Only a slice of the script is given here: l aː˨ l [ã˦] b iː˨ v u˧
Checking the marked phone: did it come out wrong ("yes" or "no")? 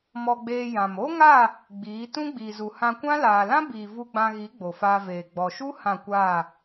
no